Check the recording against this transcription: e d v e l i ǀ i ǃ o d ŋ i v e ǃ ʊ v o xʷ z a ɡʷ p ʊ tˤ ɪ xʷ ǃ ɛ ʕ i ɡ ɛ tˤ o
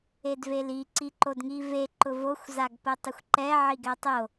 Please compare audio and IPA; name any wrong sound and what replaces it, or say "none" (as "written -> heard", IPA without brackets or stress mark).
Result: ɡʷ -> ɡ